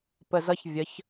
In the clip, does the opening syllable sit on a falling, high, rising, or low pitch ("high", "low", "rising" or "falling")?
low